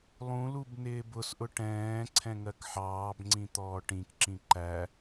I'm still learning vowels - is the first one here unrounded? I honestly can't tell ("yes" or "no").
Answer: no